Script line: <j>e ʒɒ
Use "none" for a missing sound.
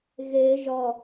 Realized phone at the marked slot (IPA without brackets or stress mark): ɣ